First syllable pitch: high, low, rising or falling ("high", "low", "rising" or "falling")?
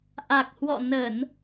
low